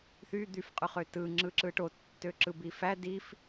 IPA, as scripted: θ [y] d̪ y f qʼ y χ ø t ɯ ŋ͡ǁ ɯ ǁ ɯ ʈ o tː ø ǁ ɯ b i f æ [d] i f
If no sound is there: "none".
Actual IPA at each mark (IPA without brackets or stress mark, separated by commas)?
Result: y, d